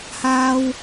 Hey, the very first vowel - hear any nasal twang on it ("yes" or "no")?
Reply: no